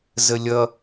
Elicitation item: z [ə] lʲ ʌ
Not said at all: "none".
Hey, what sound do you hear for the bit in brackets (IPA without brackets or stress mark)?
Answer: ə